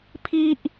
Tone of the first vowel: high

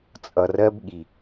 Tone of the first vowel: low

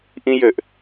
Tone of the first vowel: high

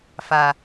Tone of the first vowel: low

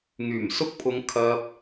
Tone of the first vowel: low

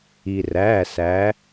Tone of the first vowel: low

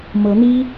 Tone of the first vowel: rising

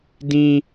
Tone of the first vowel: high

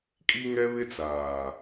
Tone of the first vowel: high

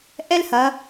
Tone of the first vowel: high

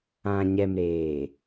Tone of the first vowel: low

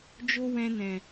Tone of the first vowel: high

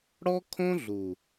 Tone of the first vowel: high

